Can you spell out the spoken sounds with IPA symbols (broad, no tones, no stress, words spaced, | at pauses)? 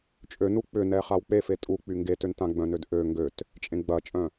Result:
t͡ʃʼø nuk͡pʏ nɛχawk͡pe fetʼu k͡pyŋɡetøntã ɡ͡bœ̃nødʔø ŋɡøt | t͡ʃʼẽɡ͡bɐt͡ʃʼœ̃